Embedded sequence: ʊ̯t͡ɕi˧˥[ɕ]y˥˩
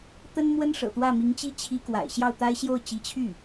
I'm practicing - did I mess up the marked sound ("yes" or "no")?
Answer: yes